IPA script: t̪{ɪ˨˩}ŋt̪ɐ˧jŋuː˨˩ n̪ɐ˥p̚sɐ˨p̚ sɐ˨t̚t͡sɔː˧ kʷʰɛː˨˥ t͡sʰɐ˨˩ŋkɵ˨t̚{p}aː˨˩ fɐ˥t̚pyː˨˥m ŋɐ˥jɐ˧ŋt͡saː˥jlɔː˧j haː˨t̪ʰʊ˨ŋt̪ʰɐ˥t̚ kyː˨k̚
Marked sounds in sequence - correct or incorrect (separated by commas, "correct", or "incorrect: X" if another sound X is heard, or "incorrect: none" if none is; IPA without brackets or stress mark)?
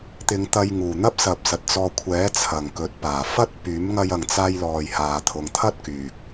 incorrect: ɪ˨˧, correct